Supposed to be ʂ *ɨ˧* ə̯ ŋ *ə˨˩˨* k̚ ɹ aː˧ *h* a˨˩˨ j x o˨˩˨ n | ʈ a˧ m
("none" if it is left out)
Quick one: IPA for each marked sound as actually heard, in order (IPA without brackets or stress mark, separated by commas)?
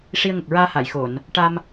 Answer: i˧, ə˨˩, h